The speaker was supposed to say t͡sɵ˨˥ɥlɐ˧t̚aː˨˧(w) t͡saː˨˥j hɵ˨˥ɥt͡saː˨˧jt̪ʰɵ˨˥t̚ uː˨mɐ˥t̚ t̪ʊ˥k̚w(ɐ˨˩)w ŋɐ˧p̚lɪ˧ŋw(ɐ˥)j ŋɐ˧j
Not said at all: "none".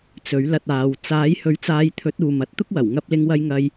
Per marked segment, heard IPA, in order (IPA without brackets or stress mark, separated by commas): w, ɐ˨˩, ɐ˧